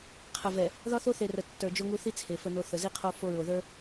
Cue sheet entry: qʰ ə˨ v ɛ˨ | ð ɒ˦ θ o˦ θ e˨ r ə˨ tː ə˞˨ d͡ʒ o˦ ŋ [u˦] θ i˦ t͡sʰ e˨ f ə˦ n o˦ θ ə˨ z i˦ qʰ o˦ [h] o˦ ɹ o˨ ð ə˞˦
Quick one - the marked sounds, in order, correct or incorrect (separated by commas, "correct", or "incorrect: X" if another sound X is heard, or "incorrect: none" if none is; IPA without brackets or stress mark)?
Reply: correct, incorrect: f